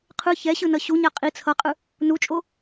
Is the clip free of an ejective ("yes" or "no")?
no